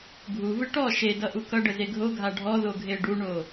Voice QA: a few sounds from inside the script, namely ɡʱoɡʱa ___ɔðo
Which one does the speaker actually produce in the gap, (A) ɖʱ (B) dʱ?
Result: A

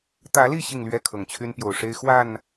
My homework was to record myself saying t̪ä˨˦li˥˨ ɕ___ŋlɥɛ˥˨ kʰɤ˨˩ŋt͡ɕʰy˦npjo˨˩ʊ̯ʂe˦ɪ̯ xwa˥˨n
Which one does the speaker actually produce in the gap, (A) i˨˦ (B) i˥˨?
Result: B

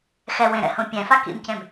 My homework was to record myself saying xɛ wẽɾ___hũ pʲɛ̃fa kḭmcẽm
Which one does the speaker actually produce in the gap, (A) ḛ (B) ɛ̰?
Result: B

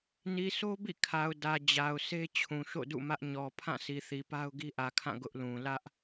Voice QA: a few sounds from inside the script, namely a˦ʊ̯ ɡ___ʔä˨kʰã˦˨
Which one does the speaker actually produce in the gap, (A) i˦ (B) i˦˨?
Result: A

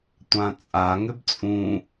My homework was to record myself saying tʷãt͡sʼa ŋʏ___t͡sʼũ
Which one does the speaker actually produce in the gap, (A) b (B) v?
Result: A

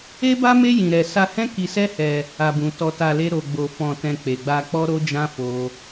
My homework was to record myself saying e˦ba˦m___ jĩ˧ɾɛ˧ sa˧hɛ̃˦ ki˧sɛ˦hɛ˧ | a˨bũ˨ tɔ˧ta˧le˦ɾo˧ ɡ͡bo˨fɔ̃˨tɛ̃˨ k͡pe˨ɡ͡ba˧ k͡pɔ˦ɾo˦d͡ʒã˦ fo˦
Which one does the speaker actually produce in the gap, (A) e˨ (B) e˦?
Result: B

